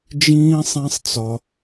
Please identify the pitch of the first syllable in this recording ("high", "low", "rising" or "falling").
high